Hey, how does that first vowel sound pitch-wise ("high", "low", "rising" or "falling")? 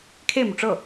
falling